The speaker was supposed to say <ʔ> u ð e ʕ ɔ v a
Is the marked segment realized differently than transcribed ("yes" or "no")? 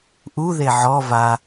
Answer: no